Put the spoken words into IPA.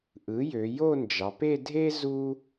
ʔ ɯ˩˥ j ø˩˧ j o˥˧ n d͡ʒ ɑ˩˧ p e˥˧ dʱ e˥ z u˥

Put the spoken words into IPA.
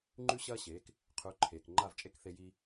ŋ͡ǃ ʉ˥ ɕ ɐː˥ ɕ eː˩˥ k | qʰ ʉ˩˥ ǃʰ eː˩ k ŋ͡ǃ a˥˩ v t͡ʃʼ e˥ k θ e˧ j iː˧

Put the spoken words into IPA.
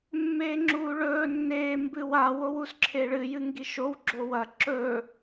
mː eː ŋ͡ǁ uː ɭ ɵː nː eː m b ɨ w a w o w u s ǁʰ e ɭ ɨ j ɨ ŋ ɡ i ʃ o w ɡ͡ǁ o w ɐ ǁ ɵ

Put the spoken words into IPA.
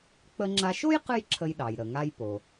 k͡p ə˧ ŋ͡ǁ a˧ ʃ o˥ j q ɨ˥ j ǁʰ ə˧ j ɗ ɑ˩ j ɾ ə˩ ŋ a˧ j p o˩

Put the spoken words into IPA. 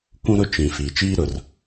kʷ ũ˦ ɾ ʊ˦ t͡ʃ ĩ˨ f iː˨ t͡ʃ iː˦ ɾ ʊ˨ r

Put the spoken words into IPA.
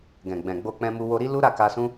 ɡ ɛ̃˨ ɡ͡b ɛ̃˨ ɡ͡b o˧ k͡p ɛ̃˧ m u˧ w o˧ ɾ i˦ l u˦ ɾ a˦˨ k a˧ s ũ˦

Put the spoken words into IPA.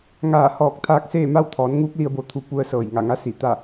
ŋ aː˧˩ h ɔː˧˩ k̚ t̪ʰ aː˧ k̚ s eː˥˨ m a˥˨ w t̪ʰ ɔː˩˧ n ŋ uː˧˥ k̚ l i˧ ə̯ b o˧ t̪ʰ u˧ p u˧ ə̯ s ɤː˧˩ j ŋ a˧˩ ŋ a˧˥ s i˧˩ t̪ a˥˨

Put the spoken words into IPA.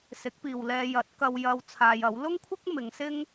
s ɪ˨˥ k̚ p iː˨ w l ɛː˧ j ɐ˨˥ t̚ k ɐ˧ w j ɐ˧ w t͡sʰ aː˧ j ɐ˨˥ w l ʊ˥ ŋ kʷʰ ɪ˥ k̚ m ɪ˨˧ ŋ s ɪ˥ ŋ

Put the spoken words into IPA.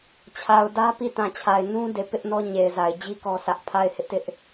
t͡ɕʰ a˨ ʊ̯ d ä˦ p i˦˨ t ã˨ t͡ɕʰ a˨ ɪ̯ n ũ˦ d e˨ p ɪ˦ ʔ n ɔ˦ ɲ e˨ ɪ̯ z a˨ ɪ̯ d͡ʑ i˦ k ɔ˦ sʰ ä˦ ʔ pʰ a˦˨ ɪ̯ h ɪ˦ ʔ t ɪ˦ ʔ

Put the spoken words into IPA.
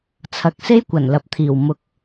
t͡sʰ ɐ˨ k̚ s e˥ j kʷ ɐ˨˩ n l ɐ˨ p̚ t̪ʰ iː˨˩ w m ʊ˨˥ k̚

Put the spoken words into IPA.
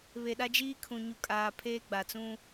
β e˨ ɗ a˦ d͡ʒ iː˦ kʰ ũ˨ ɲ u˨ kʼ aː˨ pʰ eː˦ ɡ͡b a˨ t͡s ũ˦

